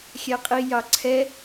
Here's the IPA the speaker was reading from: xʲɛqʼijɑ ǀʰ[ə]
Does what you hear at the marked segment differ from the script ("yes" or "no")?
yes